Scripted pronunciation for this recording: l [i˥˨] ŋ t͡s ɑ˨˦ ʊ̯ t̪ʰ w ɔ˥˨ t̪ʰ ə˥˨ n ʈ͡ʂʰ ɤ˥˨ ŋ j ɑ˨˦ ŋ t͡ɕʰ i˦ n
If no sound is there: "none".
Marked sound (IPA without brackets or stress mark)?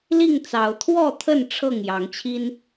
i˥˨